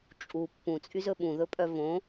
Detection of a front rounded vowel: present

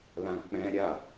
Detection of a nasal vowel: present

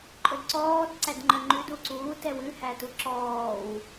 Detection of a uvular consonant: absent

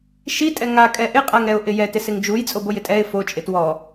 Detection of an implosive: absent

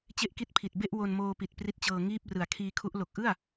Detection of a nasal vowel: absent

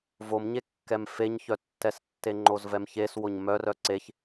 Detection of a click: present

